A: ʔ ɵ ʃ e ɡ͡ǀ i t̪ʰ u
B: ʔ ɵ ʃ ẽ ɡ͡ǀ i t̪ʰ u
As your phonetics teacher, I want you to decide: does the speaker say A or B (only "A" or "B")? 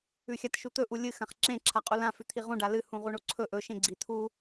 B